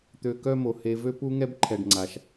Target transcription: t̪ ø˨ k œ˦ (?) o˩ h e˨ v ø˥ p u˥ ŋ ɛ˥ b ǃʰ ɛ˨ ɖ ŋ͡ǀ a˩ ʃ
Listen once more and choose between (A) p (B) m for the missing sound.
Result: B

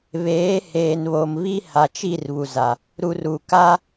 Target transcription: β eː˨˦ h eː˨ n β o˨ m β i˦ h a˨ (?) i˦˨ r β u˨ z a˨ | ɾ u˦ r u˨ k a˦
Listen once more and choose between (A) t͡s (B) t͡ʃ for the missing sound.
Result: B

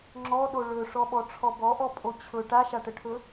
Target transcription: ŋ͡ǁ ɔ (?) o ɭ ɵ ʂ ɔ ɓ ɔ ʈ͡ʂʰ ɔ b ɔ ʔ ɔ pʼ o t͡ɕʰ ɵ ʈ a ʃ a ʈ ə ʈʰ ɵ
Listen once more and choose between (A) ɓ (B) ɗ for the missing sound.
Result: B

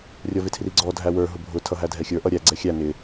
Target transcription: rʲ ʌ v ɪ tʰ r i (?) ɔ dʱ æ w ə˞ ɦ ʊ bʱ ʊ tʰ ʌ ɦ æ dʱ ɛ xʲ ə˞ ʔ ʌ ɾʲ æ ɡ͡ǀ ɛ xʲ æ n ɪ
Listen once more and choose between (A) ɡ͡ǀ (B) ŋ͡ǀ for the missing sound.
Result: A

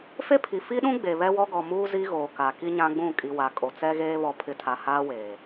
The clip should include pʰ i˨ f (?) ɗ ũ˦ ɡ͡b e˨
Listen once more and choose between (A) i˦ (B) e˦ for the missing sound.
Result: A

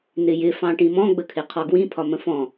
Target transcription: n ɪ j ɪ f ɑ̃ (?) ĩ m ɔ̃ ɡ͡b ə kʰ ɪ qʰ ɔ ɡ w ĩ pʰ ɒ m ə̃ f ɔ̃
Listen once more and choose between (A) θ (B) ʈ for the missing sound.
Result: B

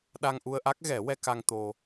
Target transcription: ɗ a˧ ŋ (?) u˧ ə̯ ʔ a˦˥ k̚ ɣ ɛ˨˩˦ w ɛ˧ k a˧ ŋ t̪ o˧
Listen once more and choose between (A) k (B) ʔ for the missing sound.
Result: B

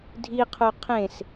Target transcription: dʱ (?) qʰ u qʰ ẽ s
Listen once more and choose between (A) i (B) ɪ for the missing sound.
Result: A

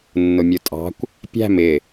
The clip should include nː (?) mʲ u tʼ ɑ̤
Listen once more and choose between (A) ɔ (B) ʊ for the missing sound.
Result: B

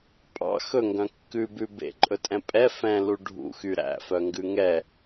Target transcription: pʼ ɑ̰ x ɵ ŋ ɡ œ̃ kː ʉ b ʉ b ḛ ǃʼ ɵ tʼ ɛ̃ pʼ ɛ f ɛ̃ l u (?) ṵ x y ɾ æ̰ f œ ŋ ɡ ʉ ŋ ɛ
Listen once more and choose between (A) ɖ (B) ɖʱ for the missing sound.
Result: B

